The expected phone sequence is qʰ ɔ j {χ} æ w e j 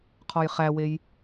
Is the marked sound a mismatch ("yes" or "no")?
no